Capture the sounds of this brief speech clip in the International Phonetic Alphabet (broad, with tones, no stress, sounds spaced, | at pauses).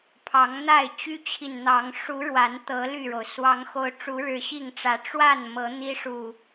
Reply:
pʰ ɑ˨˦ ŋ n̪ a˥˨ ɪ̯ t͡ɕ y˦ t͡ɕʰ i˨ n n̪ ɑ˨˦ ŋ ʂ u˨˦ ɻ w a˨˦ n t̪ ɤ˨˦ l y˥˨ ɻ o˩ ʊ̯ s w ɑ˨˦ ŋ x o˨˦ ʊ̯ ʈ͡ʂ u˨˦ ɻ ɻ̩˨˩ ɕ i˥˨ ŋ ʈ͡ʂ ä˨˦ ʈ͡ʂ w a˥˨ n m ɤ˨˦ n̪ i˦ ʂ u˨˩